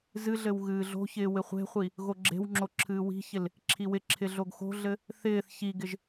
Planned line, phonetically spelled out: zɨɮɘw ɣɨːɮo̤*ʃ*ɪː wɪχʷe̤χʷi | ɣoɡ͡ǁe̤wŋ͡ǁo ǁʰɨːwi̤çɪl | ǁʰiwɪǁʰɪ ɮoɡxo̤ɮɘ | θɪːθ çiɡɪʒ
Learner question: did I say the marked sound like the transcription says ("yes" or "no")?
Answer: no